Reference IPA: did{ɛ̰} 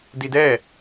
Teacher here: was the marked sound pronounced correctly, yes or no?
no